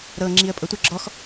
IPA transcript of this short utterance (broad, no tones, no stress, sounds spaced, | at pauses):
ɾ ɤ ŋ͡ǁ i ə̯ pʼ ɤ tʷ ə ɡ͡ǁ ɔ x